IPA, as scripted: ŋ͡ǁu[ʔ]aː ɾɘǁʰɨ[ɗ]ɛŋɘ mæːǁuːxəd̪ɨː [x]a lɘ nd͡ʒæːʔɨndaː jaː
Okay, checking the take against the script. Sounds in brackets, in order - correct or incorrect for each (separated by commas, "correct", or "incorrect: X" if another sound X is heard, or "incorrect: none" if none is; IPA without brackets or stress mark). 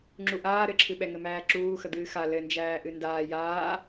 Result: correct, incorrect: ɓ, correct